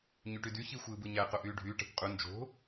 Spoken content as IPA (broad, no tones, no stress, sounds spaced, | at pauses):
ɲ y ʈ y d y ç i xʷ ɯː b ɯ ɲ æ q o ʔ yː ɖʱ yː ʈ ɑ̤ kʷ qʼ u n d͡ʒ o̤